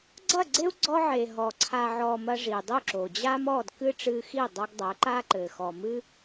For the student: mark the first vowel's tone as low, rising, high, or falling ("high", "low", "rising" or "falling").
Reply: falling